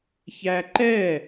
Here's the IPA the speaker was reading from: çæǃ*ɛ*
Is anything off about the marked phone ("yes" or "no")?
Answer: no